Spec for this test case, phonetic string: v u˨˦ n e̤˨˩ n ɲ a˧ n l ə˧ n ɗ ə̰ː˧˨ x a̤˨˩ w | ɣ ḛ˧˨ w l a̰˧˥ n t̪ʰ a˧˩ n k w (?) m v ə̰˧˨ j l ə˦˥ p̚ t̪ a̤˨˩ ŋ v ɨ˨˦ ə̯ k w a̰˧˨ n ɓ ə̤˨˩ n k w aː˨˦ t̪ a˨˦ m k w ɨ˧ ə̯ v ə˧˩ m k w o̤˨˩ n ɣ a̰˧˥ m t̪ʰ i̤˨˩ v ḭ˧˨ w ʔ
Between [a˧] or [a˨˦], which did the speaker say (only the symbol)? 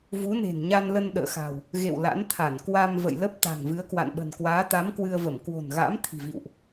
a˧